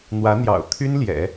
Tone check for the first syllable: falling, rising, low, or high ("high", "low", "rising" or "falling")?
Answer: rising